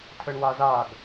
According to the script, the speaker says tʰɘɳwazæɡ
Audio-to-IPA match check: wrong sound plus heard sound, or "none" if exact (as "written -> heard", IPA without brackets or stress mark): æ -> a